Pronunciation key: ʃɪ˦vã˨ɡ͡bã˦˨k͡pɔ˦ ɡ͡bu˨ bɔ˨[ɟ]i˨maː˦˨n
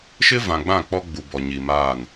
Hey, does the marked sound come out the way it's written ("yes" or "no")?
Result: no